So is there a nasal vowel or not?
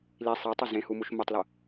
yes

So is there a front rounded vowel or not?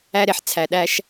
no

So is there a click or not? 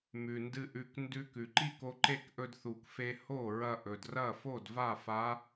yes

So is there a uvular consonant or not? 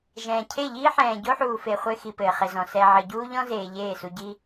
yes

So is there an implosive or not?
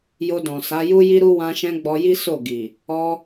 no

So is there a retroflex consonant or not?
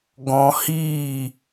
no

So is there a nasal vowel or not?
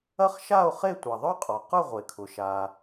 no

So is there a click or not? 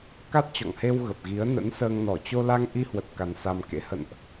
no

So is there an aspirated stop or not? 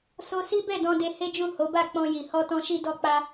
no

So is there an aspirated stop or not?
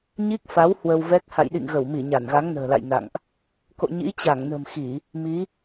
no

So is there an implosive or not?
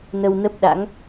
yes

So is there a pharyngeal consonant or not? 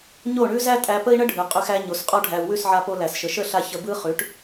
yes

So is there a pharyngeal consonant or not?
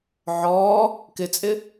yes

